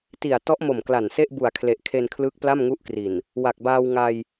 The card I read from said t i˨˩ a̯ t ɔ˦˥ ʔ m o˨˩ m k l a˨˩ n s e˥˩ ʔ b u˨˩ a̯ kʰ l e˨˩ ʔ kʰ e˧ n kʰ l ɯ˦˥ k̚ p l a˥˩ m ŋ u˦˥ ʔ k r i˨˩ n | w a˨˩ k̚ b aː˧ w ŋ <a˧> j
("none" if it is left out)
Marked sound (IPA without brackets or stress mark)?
a˧